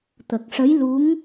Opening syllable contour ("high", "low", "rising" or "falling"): low